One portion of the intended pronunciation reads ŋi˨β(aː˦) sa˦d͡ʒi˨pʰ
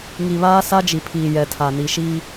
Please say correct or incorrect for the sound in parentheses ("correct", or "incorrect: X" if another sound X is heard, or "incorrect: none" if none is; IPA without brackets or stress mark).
correct